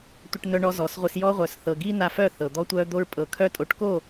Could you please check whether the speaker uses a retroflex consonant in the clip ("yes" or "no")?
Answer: yes